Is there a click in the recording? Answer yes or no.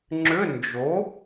yes